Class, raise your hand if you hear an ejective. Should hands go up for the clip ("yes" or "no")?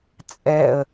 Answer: yes